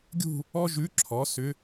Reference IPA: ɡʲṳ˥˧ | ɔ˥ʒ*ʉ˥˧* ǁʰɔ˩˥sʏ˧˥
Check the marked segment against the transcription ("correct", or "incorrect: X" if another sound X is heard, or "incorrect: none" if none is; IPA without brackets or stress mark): incorrect: ʉ˧˥